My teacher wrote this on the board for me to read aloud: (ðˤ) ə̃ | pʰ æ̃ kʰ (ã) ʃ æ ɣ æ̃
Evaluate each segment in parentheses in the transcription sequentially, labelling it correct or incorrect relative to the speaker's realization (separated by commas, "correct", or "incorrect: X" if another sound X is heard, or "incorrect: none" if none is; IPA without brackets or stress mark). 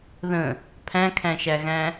incorrect: ð, incorrect: æ̃